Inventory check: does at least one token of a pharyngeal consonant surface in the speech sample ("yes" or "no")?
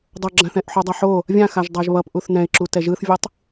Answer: yes